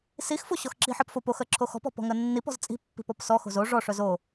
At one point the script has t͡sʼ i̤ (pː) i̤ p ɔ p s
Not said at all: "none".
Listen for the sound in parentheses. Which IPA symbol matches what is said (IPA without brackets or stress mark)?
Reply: pː